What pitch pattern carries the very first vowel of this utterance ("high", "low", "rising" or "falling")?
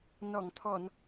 low